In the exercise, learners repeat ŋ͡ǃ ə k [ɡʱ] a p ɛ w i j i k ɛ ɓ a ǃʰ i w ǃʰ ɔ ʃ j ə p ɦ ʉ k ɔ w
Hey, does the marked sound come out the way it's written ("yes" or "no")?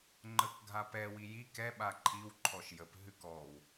yes